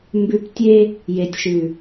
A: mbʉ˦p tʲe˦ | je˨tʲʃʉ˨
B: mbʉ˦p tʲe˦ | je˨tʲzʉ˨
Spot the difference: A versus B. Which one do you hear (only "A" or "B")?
A